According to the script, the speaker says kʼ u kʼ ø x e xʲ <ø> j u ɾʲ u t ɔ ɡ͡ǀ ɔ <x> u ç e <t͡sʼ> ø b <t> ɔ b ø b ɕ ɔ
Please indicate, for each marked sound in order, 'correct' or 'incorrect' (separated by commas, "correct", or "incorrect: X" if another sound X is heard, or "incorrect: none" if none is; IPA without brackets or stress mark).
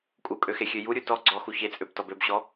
correct, correct, correct, correct